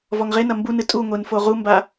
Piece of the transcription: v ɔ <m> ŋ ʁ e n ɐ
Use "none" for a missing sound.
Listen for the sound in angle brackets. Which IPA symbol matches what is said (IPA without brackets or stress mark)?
none